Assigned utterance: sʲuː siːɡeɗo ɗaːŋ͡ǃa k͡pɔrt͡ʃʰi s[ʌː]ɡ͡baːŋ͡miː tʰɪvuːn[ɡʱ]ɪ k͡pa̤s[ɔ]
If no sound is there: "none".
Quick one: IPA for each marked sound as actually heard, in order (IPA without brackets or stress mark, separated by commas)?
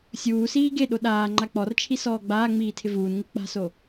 ɔː, ŋ, o